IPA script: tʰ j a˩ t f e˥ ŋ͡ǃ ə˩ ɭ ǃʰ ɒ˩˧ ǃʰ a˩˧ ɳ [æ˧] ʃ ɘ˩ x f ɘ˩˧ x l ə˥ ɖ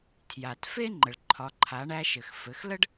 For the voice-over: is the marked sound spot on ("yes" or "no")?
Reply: yes